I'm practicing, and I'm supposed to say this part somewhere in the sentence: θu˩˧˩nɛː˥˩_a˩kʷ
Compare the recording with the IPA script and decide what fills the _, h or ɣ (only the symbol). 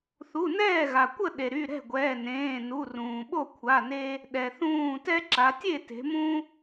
ɣ